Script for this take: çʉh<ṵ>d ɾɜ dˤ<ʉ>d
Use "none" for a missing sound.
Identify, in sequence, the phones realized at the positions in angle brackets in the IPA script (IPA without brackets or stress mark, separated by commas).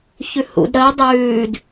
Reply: ṵ, ʉː